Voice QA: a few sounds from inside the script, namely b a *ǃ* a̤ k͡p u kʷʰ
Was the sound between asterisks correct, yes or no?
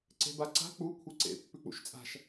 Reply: no